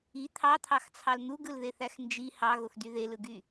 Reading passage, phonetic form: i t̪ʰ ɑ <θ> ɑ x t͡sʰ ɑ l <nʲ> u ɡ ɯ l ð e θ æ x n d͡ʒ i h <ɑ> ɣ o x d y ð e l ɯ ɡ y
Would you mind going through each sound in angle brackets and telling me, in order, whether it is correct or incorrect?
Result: incorrect: t̪ʰ, incorrect: n̪, correct

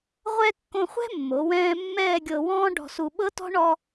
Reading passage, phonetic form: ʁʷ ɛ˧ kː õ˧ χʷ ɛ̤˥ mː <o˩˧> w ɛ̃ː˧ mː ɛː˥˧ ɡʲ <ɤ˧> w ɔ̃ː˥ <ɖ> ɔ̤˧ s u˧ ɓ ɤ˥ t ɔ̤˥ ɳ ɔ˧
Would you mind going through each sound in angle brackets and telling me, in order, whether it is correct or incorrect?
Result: correct, correct, correct

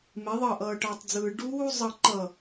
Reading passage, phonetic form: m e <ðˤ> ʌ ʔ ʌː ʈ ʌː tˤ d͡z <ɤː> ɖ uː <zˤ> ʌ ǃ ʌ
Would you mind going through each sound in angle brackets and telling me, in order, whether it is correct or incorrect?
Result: correct, incorrect: ɯː, correct

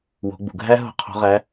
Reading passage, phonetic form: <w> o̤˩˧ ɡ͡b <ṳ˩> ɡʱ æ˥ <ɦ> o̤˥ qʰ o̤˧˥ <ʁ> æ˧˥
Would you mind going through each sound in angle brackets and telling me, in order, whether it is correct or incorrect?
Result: correct, correct, correct, correct

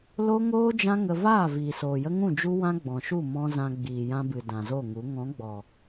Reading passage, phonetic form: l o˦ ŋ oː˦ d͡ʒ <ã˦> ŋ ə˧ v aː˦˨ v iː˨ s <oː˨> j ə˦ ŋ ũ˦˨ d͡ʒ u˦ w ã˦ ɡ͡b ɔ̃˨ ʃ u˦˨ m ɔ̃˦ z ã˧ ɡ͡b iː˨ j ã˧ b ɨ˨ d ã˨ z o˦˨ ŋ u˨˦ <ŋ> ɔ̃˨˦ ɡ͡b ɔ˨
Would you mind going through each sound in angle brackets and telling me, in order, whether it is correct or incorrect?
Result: correct, correct, correct

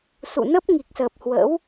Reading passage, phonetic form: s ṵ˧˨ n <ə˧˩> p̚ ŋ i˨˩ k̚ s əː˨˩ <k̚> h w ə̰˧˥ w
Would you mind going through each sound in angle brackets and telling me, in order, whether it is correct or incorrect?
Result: incorrect: ə˦˥, incorrect: p̚

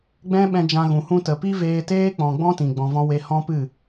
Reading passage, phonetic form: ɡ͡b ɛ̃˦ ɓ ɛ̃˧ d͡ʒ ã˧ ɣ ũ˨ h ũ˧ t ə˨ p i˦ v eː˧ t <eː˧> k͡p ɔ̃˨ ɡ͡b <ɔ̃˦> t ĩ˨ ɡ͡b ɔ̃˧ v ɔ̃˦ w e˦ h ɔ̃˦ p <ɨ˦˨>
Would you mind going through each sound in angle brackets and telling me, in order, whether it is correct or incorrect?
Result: incorrect: eː˦, correct, correct

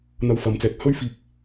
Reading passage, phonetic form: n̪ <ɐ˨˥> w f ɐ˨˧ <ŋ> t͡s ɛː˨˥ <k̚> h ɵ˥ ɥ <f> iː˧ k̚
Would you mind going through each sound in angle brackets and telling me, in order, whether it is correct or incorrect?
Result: incorrect: ɐ˧, incorrect: m, correct, correct

